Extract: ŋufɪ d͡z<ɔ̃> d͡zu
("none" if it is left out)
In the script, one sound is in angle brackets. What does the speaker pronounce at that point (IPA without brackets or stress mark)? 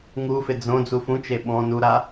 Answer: õ